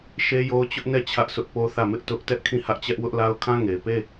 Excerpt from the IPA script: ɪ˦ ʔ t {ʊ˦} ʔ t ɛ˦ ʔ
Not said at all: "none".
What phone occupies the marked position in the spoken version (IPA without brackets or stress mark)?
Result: ʊ˦